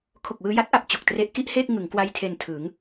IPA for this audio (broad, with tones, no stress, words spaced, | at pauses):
kʰo˨˩k̚wɯː˧ja˦˥t̚ʔa˨˩p̚ t͡ɕo˨˩k̚tre˦˥ʔ ki˥˩ʔheː˥˩k̚ ŋɯ˩˦ŋkwa˦˥j tʰe˧ntʰɯ˩˦ŋ